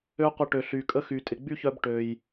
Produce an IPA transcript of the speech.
ø˦ qʷ ə˧ ʈ ø˨ ɬ y˨ kʼ ə˦ x y˨ tʼ ɪ˨ ɡ͡b y˦ ç œ˧ b ʈ ø˨ j

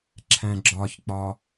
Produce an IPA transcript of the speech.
ǁʰ æ̃ ɡ͡ǁ ɒ ç k͡p ɒ

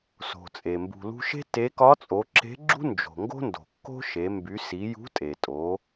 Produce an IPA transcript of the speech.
s o̤˩ t͡sʼ e˩ m b ṳ˩ l ṳ˧ ʃ e̤˥ t e˧˥ k ɒ˧˥ t͡sʼ o˩˧ ǁ e̤˧˥ ɡ͡ǁ ṳ˥ n d͡ʒ o̤˩ ŋ ɡ o̤˥ n d o̤˩ kː o̤˥ ʃ e˩˧ m b y˩˧ s i˩˧ j ṳ˧˥ tʼ e˩ tʼ o˩˧

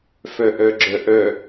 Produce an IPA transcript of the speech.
f œ ʔ œ ɡ͡ǁ œ ʔ œ

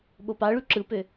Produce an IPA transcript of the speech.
ɓ o p ɑ ɭ y ǁ ɯ p ø

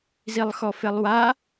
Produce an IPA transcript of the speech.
z i lˠ x ɔ f e lˠ w a

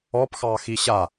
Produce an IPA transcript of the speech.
ɔ p x ɑː x i ɕ a

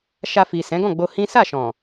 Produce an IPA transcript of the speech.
ʃ a˧ f i˨ s ɛ̃˨˦ ɡ ɔ̃˦˨ ɡ͡b o˧ h ĩ˦ s a˦˨ ʃ ɔ̃˨

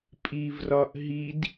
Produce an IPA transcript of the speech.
pʼ i v r ɒ ʔ ɦ i d

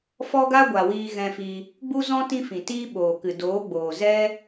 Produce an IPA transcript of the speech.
f ɔ˦ ɡ a˦ ɡʷ a˨ w iː˧ ɣ ɛ̃˧ f i˧ | ɡ͡b u˦ z ɔ̃˦ t ĩ˦ f ĩ˨ t iː˦ ɓ oː˨ k ɨ˨ d oː˨˦ ɡ͡b oː˨ z ɛ˦

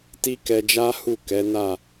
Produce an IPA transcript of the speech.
t i˦ k ɛ˧ d͡ʒ a˦ h u˦˨ k ɛ˨˦ n a˦˨

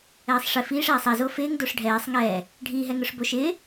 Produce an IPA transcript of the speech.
ɛː sˤ ʂ ɪ f iː ʂ ɛː sˤ ɛ z o f ɪː ŋ d o ʂ ɖʱ ɛː sˤ ŋ ɛː | ɖʱ i ɦ ɛ ŋ ʊ ʂ b o ʃ ɪː

